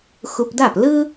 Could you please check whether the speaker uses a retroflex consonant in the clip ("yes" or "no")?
no